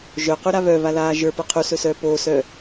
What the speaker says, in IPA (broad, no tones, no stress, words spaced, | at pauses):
ʒœquɾa βœβalaː ʒə˞pɤ qʰusɵsœː poːsœː